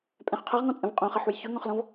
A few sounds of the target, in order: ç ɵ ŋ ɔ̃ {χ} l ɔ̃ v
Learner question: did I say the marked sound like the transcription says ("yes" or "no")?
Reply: yes